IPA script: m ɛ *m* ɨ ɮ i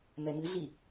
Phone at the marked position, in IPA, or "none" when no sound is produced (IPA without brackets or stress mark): m